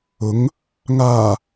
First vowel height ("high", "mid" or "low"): high